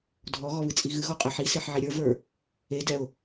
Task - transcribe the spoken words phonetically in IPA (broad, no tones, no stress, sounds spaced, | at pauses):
dʱ ɔ ɣ ɔ β ɨ t͡sʼ i ɣ ɨ ɣ ɔ qʼ ɛ ħ i s e ħ ʕ i ɾʲ ə˞ v ə˞ | e d ɛ ʊ̯